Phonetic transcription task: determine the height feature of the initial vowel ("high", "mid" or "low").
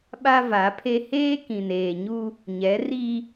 low